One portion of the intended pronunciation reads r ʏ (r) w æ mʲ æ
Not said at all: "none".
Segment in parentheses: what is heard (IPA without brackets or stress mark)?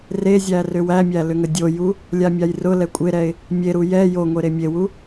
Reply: none